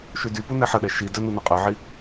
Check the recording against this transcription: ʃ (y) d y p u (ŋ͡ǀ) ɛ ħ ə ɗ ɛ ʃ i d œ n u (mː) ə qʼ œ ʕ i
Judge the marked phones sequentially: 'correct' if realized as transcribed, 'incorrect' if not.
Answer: correct, incorrect, incorrect

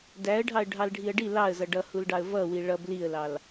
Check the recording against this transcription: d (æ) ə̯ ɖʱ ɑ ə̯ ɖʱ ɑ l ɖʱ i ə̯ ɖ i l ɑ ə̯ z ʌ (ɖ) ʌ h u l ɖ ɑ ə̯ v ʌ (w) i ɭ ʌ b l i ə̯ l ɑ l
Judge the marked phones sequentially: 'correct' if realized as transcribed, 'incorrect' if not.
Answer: correct, correct, correct

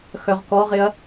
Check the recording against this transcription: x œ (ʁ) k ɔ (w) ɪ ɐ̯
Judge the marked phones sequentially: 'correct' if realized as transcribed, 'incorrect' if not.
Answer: correct, incorrect

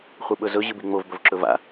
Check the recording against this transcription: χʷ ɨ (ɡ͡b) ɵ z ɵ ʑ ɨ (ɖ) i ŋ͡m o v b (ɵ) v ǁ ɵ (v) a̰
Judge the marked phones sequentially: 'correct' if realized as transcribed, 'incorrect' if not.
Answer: incorrect, incorrect, correct, correct

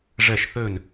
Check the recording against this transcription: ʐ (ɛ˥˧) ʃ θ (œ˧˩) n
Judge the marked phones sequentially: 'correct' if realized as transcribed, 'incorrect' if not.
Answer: incorrect, incorrect

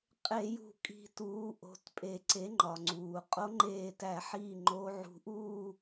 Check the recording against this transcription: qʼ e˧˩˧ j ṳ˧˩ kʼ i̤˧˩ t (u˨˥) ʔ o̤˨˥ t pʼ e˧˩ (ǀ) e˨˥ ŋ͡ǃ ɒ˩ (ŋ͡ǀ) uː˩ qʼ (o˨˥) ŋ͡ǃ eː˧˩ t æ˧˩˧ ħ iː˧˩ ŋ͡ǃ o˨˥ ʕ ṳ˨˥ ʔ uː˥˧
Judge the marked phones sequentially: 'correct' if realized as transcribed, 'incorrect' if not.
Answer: incorrect, correct, correct, correct

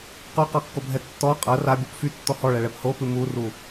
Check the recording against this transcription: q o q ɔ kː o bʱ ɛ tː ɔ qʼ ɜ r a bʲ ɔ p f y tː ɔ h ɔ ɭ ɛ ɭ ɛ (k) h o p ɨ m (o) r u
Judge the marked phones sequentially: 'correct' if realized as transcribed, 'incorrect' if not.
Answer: incorrect, incorrect

